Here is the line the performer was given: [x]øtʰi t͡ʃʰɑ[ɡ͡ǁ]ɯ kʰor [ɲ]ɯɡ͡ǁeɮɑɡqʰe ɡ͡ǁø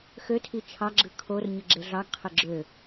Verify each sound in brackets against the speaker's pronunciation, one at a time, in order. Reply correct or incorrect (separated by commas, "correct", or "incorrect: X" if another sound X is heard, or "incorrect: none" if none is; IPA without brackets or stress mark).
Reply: correct, correct, correct